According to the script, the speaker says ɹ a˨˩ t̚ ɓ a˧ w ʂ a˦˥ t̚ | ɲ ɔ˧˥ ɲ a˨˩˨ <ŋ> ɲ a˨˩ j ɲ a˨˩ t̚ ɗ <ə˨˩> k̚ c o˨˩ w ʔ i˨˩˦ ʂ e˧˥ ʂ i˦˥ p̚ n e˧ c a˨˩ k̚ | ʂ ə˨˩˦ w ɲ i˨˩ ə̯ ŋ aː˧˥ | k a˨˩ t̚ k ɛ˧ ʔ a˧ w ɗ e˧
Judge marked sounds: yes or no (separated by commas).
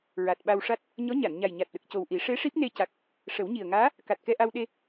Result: no, yes